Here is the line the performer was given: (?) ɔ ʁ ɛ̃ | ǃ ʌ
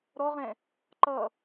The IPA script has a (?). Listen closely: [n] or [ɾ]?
ɾ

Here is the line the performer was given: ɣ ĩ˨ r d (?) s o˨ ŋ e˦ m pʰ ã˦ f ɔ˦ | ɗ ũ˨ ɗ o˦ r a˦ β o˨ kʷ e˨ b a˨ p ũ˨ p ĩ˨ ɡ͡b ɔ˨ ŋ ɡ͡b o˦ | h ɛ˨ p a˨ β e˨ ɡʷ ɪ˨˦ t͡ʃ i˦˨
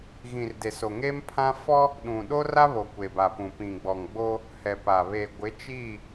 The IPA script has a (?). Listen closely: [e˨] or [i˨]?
e˨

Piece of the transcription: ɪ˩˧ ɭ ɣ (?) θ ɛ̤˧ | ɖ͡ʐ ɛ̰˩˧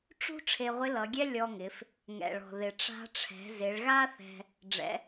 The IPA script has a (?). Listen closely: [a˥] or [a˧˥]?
a˥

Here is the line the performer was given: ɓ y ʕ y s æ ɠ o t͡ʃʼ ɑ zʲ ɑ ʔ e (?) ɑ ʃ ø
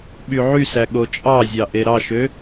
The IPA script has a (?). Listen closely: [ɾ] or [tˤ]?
ɾ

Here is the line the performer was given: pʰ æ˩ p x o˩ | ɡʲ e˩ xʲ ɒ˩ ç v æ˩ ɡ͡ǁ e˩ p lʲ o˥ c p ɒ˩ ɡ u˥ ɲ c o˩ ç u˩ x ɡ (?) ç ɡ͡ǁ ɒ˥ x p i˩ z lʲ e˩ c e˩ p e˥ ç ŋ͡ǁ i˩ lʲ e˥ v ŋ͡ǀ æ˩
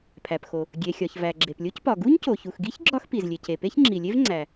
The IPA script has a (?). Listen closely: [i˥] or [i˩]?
i˥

